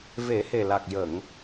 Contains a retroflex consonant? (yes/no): no